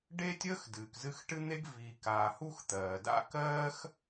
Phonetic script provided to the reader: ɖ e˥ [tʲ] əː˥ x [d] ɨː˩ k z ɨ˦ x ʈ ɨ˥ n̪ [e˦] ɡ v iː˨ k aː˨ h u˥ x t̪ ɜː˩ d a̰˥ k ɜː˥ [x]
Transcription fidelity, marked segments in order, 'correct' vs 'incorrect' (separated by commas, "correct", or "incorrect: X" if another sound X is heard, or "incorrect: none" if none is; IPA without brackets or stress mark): correct, correct, incorrect: e˥, correct